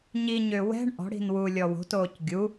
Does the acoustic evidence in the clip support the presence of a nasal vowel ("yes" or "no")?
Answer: no